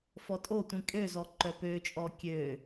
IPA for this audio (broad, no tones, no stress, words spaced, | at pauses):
fɔtʼotʷĩ kʼøzɔ ǃœpøt͡ʃʼɔ kʲø